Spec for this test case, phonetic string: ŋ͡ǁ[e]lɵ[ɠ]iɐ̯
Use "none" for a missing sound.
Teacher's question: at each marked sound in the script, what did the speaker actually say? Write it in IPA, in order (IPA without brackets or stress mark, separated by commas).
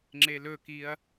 e, k